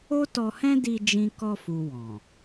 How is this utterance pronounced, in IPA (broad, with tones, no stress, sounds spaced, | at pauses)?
o˦ t ɔ˧ h ɛ̃˦ d i˧ d͡ʒ ĩ˧ k ɔ˧ f u˨ w ɔ̃˨